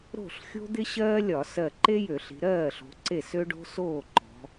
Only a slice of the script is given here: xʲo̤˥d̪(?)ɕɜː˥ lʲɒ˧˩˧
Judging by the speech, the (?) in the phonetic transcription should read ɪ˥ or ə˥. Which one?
ɪ˥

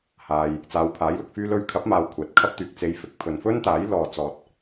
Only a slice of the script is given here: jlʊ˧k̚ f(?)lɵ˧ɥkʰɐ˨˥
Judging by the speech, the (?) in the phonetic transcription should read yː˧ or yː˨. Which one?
yː˧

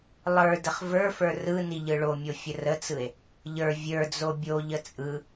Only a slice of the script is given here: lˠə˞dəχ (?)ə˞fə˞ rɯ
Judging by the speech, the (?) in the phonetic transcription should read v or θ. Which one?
v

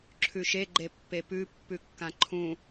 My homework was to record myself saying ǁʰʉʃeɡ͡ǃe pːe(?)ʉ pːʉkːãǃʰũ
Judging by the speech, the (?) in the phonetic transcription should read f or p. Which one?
p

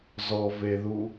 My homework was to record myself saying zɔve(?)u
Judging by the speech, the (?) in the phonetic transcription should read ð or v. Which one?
ð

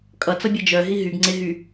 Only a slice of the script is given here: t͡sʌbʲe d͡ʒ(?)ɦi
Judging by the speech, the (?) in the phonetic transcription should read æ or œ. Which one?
œ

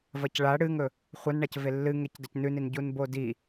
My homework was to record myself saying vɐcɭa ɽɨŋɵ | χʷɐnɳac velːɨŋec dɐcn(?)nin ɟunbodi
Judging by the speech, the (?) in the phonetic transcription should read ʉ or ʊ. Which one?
ʉ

